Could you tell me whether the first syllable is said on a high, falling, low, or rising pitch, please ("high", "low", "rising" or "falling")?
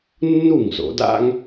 falling